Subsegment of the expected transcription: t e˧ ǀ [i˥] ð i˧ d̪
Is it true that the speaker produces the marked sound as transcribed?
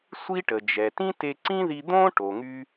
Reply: no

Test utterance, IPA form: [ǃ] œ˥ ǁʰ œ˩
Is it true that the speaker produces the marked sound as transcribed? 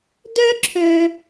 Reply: no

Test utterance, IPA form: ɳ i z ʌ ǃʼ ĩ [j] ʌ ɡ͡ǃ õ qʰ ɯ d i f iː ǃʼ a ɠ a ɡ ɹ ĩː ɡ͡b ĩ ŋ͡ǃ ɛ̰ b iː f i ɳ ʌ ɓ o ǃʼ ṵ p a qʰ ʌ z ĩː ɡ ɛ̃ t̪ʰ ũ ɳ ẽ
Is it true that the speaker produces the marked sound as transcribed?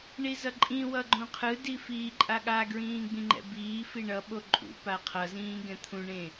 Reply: no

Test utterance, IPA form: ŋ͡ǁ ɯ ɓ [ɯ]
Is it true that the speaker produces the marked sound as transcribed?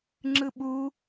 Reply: no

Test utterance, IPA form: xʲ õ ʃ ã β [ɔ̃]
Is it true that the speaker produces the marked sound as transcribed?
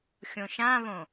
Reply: no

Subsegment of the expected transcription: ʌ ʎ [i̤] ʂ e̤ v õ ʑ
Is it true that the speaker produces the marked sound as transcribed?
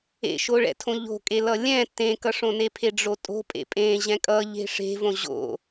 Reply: no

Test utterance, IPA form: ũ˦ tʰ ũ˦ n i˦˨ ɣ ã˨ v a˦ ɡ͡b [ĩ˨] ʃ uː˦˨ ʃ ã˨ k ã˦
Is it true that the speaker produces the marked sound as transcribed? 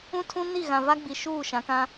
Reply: no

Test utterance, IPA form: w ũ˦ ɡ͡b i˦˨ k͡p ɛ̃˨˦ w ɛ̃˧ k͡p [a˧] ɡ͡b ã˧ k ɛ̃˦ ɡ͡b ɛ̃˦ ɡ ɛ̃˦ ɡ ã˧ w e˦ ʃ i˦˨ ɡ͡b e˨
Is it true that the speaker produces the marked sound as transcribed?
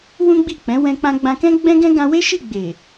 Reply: no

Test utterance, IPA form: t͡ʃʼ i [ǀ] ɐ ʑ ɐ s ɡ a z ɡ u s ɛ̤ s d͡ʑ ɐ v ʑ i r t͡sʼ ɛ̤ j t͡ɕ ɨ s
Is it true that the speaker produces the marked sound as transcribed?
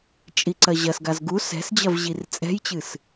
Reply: yes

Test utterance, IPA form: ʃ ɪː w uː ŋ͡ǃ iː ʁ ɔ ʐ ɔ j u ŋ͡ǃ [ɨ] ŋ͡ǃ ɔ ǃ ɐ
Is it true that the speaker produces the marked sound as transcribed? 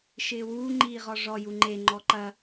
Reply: no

